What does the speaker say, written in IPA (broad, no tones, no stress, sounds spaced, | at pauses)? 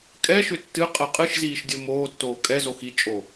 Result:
kʼ ɛ ʃ ʏ tː ɨ qʼ ɛ qʼ ɨ ʃ z iː ʃ dʲ o m oː tː oː kʼ ɛ z o x i t͡ʃʼ o